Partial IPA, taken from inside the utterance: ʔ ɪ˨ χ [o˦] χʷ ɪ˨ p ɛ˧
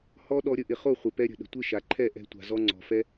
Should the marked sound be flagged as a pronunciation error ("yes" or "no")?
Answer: yes